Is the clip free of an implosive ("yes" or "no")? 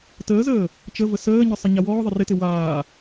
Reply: yes